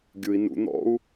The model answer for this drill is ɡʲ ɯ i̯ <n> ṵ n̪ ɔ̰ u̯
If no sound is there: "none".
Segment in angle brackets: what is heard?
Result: n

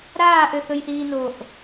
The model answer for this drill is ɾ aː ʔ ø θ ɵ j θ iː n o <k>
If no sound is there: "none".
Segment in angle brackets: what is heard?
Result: ʔ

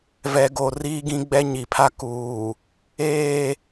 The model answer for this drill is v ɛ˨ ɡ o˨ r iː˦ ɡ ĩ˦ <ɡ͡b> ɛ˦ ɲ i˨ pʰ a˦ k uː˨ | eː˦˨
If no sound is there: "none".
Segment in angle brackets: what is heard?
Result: ɡ͡b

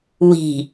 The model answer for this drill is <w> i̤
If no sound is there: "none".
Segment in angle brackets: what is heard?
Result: w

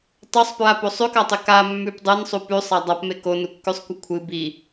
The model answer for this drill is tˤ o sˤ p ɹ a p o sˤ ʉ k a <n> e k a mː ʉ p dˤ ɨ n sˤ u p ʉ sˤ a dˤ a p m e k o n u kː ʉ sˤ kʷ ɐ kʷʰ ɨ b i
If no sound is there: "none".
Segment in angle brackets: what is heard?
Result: tˤ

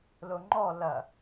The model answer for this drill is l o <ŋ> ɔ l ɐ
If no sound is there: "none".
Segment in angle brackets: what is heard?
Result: ŋ͡ǃ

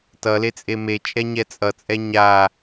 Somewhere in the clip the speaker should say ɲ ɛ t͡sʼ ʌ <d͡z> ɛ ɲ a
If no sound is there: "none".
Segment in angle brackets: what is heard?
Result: t͡sʼ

